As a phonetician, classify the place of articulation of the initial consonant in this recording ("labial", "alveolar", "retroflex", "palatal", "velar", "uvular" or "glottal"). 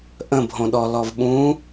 glottal